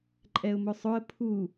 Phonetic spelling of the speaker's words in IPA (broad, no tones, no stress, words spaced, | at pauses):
ǃʼɛʊ̯mʊsˤʊə̯ pʰu